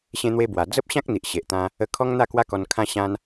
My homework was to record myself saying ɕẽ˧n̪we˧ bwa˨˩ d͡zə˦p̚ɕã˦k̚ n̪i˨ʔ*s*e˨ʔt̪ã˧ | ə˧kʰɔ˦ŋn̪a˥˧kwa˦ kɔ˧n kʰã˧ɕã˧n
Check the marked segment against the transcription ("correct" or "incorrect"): incorrect